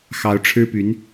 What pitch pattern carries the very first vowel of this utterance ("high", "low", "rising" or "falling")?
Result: rising